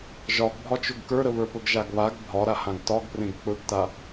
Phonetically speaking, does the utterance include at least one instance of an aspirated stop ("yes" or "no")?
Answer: no